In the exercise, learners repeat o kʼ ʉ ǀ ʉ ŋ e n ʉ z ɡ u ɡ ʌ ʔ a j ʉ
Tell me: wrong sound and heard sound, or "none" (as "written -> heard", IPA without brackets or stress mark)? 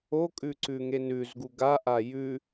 ʌ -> a